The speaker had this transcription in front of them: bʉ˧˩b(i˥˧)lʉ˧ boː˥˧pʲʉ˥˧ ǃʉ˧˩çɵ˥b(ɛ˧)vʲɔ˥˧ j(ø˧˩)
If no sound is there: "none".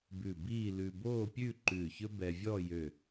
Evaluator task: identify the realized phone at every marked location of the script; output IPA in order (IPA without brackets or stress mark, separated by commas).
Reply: iː˥˧, ɛ˧, ø˧˩